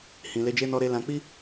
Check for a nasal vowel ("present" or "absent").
present